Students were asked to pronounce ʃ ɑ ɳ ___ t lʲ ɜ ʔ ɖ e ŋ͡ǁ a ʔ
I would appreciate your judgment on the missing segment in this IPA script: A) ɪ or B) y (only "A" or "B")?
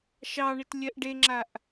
A